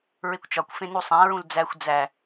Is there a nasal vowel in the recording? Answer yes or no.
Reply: yes